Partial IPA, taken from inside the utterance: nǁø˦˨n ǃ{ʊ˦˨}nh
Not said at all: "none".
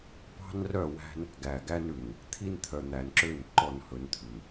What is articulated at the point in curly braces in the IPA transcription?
ɔ˦˨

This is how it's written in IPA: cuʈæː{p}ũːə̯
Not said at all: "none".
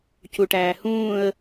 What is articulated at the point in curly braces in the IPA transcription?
h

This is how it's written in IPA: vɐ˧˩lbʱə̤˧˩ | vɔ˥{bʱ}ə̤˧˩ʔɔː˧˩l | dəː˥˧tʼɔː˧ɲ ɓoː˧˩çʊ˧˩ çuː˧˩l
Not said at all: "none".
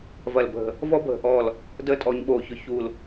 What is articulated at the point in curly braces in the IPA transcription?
bʱ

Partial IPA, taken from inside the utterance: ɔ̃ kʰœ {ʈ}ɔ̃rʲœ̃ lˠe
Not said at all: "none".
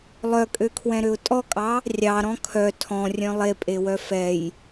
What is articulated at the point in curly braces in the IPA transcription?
tʰ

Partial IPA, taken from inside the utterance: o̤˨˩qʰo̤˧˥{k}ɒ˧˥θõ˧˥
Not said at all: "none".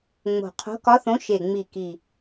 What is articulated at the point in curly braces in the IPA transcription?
k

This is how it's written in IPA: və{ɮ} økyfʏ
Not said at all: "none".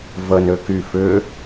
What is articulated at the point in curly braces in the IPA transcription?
n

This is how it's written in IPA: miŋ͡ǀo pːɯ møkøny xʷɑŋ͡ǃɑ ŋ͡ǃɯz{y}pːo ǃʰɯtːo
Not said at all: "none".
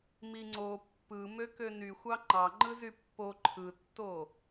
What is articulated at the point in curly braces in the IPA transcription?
y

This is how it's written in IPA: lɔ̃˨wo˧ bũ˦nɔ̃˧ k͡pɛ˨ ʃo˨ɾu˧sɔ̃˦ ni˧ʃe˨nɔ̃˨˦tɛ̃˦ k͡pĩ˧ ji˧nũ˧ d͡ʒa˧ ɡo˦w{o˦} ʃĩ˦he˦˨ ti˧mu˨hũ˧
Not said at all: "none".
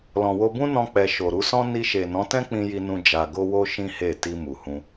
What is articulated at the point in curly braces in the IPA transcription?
o˦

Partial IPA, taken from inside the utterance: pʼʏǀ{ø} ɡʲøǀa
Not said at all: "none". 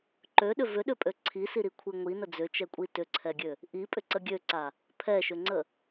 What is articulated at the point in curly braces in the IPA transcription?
ə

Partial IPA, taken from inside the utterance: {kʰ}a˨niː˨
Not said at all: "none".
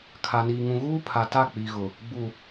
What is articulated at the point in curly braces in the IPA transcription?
kʰ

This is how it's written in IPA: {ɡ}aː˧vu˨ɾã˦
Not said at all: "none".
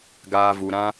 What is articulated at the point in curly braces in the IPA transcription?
ɡ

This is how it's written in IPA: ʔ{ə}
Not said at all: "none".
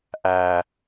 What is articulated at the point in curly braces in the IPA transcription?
æ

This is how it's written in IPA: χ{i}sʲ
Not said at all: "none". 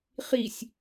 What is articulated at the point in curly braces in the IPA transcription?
i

